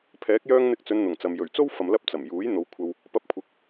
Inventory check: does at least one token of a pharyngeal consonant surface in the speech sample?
no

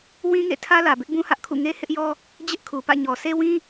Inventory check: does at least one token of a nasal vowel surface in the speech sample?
yes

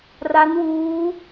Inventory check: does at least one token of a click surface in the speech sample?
no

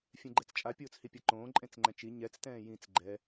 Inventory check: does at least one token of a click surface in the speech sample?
yes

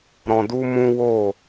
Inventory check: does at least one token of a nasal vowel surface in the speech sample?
yes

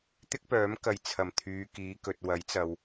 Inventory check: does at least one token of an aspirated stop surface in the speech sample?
yes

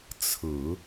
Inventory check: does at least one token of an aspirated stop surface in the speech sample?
yes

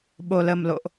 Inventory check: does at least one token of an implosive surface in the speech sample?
yes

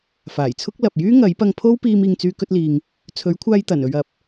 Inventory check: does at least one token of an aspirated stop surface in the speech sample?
yes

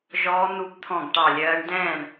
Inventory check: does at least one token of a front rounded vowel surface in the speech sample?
no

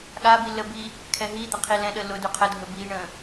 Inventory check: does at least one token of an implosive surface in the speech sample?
yes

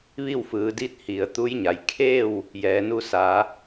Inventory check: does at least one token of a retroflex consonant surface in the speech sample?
no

